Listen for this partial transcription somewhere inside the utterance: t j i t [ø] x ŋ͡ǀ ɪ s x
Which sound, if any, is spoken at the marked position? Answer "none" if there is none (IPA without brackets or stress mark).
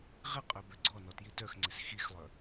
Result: œ